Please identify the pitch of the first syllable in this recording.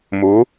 rising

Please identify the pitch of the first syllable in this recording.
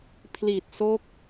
low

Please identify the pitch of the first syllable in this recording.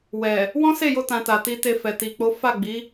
low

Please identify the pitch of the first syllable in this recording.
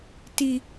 low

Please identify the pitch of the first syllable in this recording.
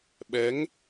rising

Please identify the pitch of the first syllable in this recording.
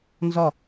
falling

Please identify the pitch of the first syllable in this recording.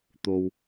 high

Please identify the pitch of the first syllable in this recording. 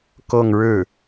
falling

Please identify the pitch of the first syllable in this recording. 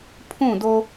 falling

